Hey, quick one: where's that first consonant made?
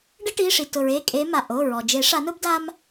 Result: retroflex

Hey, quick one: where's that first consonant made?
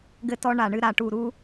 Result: velum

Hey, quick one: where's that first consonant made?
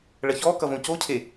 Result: retroflex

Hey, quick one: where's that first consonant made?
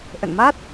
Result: throat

